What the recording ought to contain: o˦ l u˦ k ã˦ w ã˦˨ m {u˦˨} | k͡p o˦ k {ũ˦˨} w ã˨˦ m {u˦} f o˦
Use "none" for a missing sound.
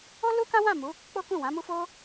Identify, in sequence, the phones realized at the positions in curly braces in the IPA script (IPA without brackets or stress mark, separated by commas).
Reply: u˨˦, ũ˦˨, u˦